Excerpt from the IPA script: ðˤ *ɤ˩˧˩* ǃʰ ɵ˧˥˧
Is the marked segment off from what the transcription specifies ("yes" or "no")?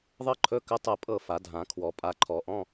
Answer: yes